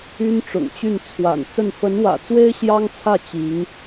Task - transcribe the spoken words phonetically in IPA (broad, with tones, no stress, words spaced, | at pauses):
y˥nʈ͡ʂʊ̰˨˩ŋt͡ɕy˥˩n t͡sʰwa̰˨˩nt͡sə˥˩n fə˧˥nwä̰˨˩t͡swe˥ɪ̯ ɕjɑ˥ŋt͡sʰä˥˩ t͡ɕi˧˥ŋ